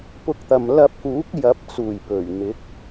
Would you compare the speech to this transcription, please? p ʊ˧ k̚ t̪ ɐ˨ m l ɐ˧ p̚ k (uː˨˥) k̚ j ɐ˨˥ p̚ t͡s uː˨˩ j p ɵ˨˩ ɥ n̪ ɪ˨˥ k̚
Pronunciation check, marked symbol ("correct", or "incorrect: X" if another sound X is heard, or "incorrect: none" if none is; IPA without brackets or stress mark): correct